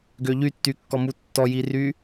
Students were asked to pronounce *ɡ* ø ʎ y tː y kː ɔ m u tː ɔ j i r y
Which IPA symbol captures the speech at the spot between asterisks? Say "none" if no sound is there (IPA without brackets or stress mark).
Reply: ɡ